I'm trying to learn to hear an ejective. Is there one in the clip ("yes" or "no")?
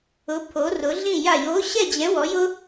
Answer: no